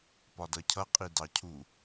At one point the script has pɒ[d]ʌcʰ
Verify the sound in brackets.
correct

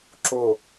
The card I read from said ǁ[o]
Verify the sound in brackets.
correct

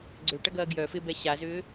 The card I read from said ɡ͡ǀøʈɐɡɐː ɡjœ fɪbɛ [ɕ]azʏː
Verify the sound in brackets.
correct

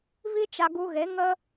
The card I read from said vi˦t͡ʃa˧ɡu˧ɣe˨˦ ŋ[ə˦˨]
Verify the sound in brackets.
incorrect: ə˦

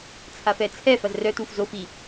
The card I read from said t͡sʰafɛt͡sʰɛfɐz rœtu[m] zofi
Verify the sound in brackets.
incorrect: f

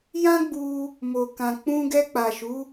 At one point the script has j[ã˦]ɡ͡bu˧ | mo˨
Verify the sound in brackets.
correct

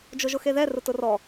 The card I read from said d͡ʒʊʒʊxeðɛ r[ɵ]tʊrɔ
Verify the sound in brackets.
incorrect: ʊ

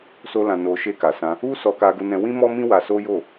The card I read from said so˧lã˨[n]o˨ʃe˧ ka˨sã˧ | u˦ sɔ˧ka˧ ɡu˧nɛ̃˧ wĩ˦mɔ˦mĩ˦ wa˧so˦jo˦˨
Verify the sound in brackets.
correct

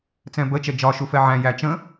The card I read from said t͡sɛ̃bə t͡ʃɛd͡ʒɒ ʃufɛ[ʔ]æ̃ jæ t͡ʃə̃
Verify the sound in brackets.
incorrect: ʕ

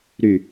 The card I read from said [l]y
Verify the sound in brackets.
incorrect: ɾ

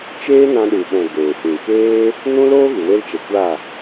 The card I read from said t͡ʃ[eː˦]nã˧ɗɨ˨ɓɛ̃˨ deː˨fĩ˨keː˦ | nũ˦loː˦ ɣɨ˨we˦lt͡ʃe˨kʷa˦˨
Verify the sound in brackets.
correct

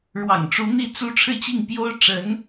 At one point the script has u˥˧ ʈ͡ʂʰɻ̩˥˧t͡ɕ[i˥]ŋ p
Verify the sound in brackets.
incorrect: i˥˩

